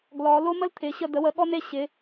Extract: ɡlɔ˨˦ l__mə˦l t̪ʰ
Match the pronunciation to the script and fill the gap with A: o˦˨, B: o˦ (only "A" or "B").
B